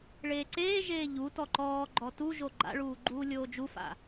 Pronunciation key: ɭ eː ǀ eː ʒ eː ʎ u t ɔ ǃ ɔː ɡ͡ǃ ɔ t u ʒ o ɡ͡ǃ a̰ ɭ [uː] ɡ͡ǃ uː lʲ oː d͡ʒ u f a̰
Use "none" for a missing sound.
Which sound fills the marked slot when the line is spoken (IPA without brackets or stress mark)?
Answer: uː